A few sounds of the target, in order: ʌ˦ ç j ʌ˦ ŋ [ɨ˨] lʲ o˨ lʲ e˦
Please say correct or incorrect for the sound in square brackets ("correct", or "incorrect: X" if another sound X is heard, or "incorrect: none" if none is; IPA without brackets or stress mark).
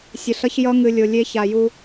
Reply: correct